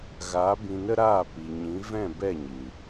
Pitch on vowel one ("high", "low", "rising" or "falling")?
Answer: rising